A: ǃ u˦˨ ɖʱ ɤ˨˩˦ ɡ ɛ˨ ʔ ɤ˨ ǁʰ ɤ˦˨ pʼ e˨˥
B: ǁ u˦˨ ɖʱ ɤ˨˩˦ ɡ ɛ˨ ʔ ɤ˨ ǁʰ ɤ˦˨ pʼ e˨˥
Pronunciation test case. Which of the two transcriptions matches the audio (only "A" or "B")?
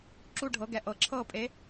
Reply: B